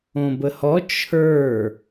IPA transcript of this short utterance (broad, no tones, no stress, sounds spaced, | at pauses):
õ b ə h ɔ t͡ʃʰ ə˞